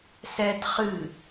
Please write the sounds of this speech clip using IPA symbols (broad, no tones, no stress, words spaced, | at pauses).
sɛt χɨ